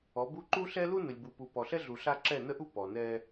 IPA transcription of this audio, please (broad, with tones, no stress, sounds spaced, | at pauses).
ɔ˨˦ b u˦ ǃ u˦ ɬ ɛ˦ l u˦ n ə˨ lʲ b u˨ p u˨ p ɔ˨ ɬ ɛ˦ ɮ u˨ ɬ a˦ ǁ ɛ˦˨ n ə˦ ʔ u˦ p ɔ˨ n ɛ˦